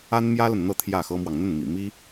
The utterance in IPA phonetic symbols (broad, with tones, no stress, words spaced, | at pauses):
a˥nmjä˥lə˨nn̪ɤ˥˧ t̪ʰjä˥˩xɤ˥mwɑ˨ŋ n̪ə˥˩nmḭ˨˩ mi˥